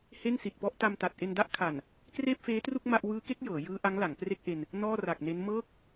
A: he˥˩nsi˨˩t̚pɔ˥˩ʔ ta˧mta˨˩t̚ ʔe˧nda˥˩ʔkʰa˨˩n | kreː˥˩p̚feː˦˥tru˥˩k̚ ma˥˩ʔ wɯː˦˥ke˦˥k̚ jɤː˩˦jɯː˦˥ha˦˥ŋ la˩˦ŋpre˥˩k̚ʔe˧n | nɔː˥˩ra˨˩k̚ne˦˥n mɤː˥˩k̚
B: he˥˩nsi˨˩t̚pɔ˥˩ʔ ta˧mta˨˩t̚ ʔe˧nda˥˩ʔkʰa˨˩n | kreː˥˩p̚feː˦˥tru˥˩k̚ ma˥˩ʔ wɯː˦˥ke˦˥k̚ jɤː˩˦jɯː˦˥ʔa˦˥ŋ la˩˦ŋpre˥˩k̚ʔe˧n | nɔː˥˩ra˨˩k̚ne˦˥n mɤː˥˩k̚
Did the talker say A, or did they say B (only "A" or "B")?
B